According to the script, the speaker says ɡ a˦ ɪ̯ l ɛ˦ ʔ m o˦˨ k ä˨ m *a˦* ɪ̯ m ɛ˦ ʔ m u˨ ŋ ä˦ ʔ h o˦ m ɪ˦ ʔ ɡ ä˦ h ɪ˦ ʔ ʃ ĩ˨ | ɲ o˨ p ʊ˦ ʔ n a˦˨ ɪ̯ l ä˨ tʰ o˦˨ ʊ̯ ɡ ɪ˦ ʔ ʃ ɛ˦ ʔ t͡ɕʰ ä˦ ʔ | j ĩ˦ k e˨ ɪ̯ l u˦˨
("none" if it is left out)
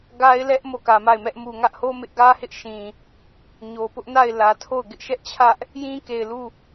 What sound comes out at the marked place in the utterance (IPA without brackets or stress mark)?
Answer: a˦˨